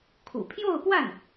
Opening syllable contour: low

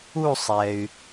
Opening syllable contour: falling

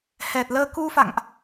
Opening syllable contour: low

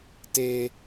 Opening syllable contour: low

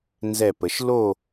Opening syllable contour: falling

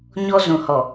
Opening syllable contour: high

